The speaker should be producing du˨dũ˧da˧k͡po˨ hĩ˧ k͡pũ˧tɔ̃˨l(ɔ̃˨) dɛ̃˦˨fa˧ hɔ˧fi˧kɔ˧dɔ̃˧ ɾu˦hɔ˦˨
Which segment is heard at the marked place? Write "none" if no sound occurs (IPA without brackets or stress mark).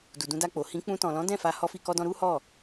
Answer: ɔ̃˨˦